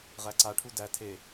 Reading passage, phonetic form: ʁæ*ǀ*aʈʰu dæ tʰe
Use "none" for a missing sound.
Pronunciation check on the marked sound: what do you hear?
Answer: ǀ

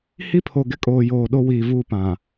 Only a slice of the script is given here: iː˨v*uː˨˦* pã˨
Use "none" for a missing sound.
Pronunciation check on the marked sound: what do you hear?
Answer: uː˦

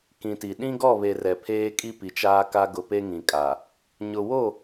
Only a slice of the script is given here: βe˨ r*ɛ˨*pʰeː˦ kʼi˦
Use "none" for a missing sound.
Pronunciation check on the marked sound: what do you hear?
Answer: ɛ˨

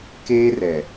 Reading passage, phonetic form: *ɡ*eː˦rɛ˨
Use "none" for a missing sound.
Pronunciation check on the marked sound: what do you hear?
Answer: k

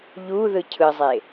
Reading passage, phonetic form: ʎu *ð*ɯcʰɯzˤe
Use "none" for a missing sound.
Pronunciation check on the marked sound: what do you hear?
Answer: ð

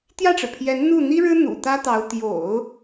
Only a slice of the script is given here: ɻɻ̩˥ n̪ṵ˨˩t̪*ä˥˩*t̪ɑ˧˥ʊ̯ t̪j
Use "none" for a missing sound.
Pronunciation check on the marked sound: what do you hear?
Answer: ä˥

